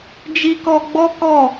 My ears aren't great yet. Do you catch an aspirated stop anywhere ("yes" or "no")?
no